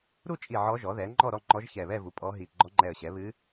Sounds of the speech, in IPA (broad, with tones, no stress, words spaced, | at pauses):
ɾu˥˨t͡ʃʼi˧˩ ʕɔ˧˥ʒɔ˩˥ðɛ˩˥ ŋ͡ǃɔ˥˨ɾɔ˥˨ŋ͡ǃɔ˧˥ʒ çɛ˧˩βɛ˥˨vu˩˥ pʼɔ˧˥ɦi˧˩ ɡ͡ǃɔ˧˥ŋ͡ǃɛ˧˩ə̯ɕɛ˩˥βɨ˧˥